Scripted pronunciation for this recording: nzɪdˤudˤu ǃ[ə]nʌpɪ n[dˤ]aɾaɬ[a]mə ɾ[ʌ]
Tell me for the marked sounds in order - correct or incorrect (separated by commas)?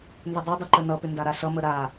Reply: correct, incorrect, incorrect, incorrect